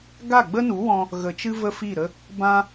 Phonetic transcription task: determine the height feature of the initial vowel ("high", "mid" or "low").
low